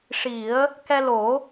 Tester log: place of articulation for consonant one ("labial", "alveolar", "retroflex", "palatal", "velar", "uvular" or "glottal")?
retroflex